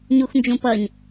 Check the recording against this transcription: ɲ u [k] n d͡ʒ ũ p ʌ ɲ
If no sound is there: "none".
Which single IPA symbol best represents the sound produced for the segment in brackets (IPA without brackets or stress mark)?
x